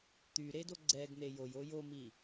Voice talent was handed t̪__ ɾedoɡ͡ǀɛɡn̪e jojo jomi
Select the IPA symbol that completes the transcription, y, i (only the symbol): y